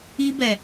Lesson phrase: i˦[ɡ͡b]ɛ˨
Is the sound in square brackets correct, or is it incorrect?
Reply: incorrect